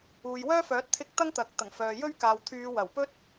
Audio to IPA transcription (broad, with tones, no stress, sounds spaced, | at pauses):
uː˨ j w œː˥ f œː˨˥ t̚ t̪ʰ ɪ˧ k̚ t̪ ɐ˥ ŋ t̪ ɐ˨ k̚ t̪ ɐ˨˩ ŋ f œː˨ j ɵ˥ ɥ k aː˨ w t̪ʰ yː˨˧ w ɐ˨˩ w p ɵ˥ t̚